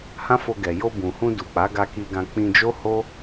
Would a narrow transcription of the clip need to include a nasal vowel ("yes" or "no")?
yes